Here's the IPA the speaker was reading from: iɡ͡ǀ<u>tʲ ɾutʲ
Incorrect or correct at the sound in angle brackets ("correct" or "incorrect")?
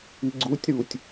correct